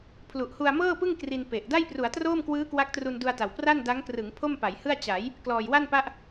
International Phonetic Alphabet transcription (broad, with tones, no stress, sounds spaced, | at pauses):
pʰ l u˨˩ ʔ h u˧ a̯ m ɤː˥˩ p ɯ˥˩ ŋ k r i˧ n p e˨˩ ʔ d a˥˩ j p r u˩˦ a̯ t r oː˥˩ m k w ɯː˦˥ k w a˦˥ k̚ t r u˧ n d u˧ a̯ t a˨˩ w p r a˥˩ n d a˦˥ ŋ k r ɯ˩˦ ŋ pʰ o˥˩ m p a˩˦ j h ɯ˥˩ a̯ t͡ɕ a˩˦ j | k l ɔː˨˩ j w a˥˩ n p a˦˥ ʔ